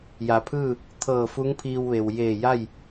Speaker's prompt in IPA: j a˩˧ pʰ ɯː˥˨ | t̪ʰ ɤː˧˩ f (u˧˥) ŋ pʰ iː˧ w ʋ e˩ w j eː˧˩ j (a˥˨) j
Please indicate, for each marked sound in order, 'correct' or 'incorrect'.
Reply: correct, correct

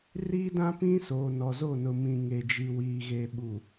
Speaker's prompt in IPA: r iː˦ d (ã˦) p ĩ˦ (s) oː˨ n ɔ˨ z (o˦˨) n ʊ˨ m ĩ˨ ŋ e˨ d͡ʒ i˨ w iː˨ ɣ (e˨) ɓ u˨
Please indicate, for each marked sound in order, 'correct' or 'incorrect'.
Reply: correct, correct, correct, correct

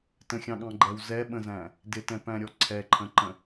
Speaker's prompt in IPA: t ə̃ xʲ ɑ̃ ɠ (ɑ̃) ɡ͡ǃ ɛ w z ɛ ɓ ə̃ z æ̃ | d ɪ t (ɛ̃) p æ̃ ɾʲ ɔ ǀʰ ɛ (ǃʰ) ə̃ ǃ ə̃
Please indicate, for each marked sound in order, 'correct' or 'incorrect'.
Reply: correct, correct, correct

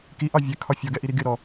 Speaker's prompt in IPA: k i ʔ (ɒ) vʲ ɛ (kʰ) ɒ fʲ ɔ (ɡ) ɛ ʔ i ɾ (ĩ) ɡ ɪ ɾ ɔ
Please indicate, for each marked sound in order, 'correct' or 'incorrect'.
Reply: incorrect, correct, correct, incorrect

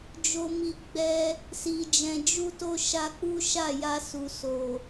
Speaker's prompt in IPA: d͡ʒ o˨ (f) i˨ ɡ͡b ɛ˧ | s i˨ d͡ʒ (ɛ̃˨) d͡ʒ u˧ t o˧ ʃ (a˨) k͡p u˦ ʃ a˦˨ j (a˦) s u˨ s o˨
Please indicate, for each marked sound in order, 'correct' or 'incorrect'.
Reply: incorrect, correct, incorrect, incorrect

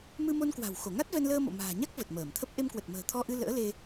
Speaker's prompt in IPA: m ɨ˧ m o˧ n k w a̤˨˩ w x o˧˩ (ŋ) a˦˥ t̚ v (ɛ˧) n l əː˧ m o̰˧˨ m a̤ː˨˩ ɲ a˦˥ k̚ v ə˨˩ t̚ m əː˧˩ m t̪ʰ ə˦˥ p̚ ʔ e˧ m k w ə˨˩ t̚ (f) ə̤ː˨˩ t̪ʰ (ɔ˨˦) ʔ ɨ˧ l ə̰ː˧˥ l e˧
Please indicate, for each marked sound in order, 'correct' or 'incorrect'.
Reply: correct, correct, incorrect, incorrect

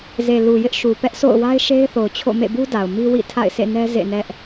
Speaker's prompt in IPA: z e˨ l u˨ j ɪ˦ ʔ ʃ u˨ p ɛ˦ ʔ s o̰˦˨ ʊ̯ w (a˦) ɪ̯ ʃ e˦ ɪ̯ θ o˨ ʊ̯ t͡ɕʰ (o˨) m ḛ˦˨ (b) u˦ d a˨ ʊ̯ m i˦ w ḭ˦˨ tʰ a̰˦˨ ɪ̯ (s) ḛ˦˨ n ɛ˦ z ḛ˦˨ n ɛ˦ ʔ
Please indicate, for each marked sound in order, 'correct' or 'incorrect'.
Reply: correct, incorrect, correct, correct

